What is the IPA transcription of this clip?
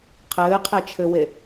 qʰ ɘː qʰ e t͡ʃʰ ɘ w e

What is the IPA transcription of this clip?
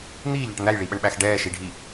n̪ iː ʎ a ʈ n̪ æ j ɭ i ɓ ə ɳ ɓ æ x ɖ ɛː ʃ i ɖʱ i

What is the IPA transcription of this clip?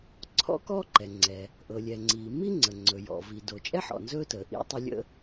ǀʰ ɔ̰˥ k ɔ˥ ǃ ɛ˩ ŋ͡ǀ ɛ˩ | ʔ ɤ˩ lʲ ɛ˩ ŋ͡ǀ iː˩ m i˥ ŋ͡ǀ ə˩ ŋ͡ǀ ɵ˩ j ɔ̰˩ v i˩ d o˩ t͡ʃʼ ɛ˥ ħ ɔ̰˩ n z ɵː˥ t əː˩ ʔ ḭ˥ tˤ ɤ˥ lʲ ə̰˥

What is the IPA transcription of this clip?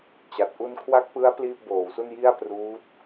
t͡ɕ a˨˩ t̚ ʔ u˧ n kʰ w a˦˥ k̚ p ɯ˦˥ a̯ p l iː˥˩ p̚ b oː˩˦ w s u˥˩ n j i˥˩ a̯ p r uː˦˥ t̚

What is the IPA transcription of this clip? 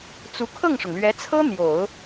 t͡s u˧˥ kʰ ɤ˥˩ ŋ ʂ ʊ˩ ŋ l ɥ ɛ˧˥ t͡sʰ ɤ˥ n̪ j o˨˩˦ ʊ̯

